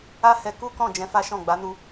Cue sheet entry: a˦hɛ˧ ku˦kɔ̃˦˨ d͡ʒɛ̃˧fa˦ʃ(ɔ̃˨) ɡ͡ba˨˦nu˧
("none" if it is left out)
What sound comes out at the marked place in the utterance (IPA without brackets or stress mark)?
ɔ̃˦˨